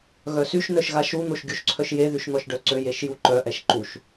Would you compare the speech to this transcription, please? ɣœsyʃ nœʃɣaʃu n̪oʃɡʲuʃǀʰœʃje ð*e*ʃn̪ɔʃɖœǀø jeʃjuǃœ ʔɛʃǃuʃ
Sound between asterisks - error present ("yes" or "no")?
yes